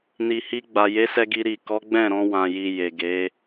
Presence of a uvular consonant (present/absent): absent